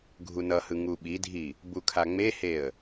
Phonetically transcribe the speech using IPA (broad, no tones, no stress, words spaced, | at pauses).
ɡʱunʌhɯ ŋuɓidʱi | bukʰaŋ͡meheə̯